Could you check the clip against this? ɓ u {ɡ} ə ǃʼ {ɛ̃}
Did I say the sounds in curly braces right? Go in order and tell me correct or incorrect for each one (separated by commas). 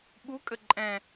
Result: incorrect, correct